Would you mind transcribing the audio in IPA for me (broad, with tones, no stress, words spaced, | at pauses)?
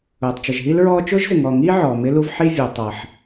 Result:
ʊː˩tˤt͡ʃə˩ʒɦi˥lɹɔː˥ t͡ʃʊː˥ʒzɪ˩ŋɔː˩ŋiː˥ ʕɔː˩mɪ˥lu˥v ħi˥vʲu˩ tˤʌ˩ħ